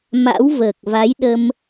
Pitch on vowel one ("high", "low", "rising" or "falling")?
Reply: rising